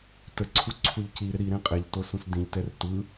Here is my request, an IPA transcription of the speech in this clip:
t ə ǀʰ u ǀʰ u ʎ c i ɾ ɪ ɾ i ɾ ẽ qʼ e ʎ t o s ũ s d ĩ ʎ t ɛ r t ɯ

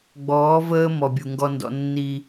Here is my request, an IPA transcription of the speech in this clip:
ɡ͡b ɔː˨˦ v əː˦ m ɔ˨ bʲ u˨ ŋ ɡ ɔ˧ n d ɔ̰˧ nː i˧

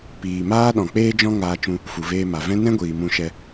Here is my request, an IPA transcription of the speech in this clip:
p iː˨ m aː˦ ɗ ɔ̃˨ k͡p eː˦ d͡ʒ ɔ̃˦ ŋ aː˧ t͡ʃ ũ˧ | f u˨ v eː˧ m a˨ v ɛ̃˦ n ɛ̃˦ ɡʷ iː˨ m ũ˧ ʃ ɛ˧

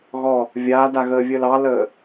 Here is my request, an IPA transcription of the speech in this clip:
ɣ ɔ | vʲ aː d a ɣ əː vʲ əː l ɑ l əː

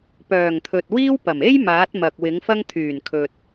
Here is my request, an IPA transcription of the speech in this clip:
p œː˨˩ ŋ t̪ʰ ɵ˨ t̚ w iː˥ w p ɐ˨˩ m e˥ j m aː˨˥ t̚ m ɐ˨ k̚ w ɪ˨˥ ŋ f ɐ˥ ŋ t̪ʰ yː˨˩ n kʰ ɵ˨ t̚

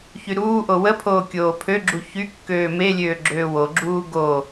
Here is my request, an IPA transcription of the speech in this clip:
ç y ɾ uː ʔ o w ə pʰ oː kʲ oː pʰ ø ɡ͡ǁ u ç y kː øː m e lʲ øː ɡ͡ǁ øː w o ɡ͡ǁ uː ɡ o

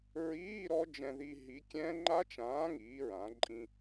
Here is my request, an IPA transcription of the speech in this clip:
ɹ iː˧˥˧ ɾ ɔ˦˥ d͡ʒ ɛ̃˧ ð i˧ ɦ i˨˥ kʲ ɛ̃˦˥ ŋ͡ǃ a˦˥ t͡ʃ ãː˨˥ ŋ iː˩˧ ɹ ã˩˧ ǃʼ ĩ˧

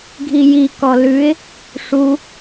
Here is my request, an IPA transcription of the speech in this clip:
ɡʱ i j i k ɔ l ʉ ɪ̯ | ʂ u

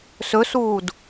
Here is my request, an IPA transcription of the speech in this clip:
s ɵ s uː d

